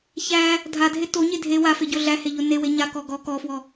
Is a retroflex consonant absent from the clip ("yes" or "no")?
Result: yes